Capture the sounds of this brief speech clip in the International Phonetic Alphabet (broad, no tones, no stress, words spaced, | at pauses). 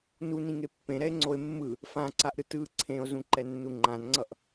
nunĩŋe pːẽɾɛe̯ŋ͡ǀoe̯ mːɯ | fãǀaʔɾɯ tɯ ǀʰẽo̯zũǃɛnːu ŋ͡ǃãnŋ͡ǀʌʔ